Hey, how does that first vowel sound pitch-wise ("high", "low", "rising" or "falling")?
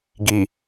low